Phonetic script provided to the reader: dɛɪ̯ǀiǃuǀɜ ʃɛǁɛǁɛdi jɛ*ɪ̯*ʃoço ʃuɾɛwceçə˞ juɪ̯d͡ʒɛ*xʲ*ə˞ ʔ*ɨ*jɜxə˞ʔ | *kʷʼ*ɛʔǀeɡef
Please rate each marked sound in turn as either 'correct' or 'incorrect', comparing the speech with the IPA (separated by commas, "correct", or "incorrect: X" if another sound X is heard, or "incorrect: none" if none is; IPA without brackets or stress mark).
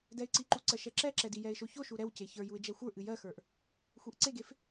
correct, incorrect: xʷ, correct, incorrect: xʷ